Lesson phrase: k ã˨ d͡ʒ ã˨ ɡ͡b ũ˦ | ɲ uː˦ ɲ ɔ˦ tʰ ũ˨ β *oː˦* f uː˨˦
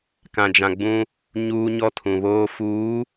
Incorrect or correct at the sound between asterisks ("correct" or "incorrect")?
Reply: correct